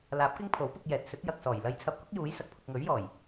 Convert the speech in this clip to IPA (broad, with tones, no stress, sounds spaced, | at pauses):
l aː˨˥ p̚ k ɪ˥ ŋ pʰ o˨˥ w p ʊ˧ k̚ j ɛː˨ t̚ s ɵ˨˥ t̚ j ɐ˨ k̚ s ɔː˨˩ j l ɐ˧ j t͡sʰ ɐ˧ p̚ k ʊ˥ k̚ j uː˨˥ j s ɐ˨ k̚ pʰ ʊ˧ k̚ ŋ ɵ˨˥ ɥ j ɔː˨˩ j